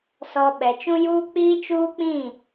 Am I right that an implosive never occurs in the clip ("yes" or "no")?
no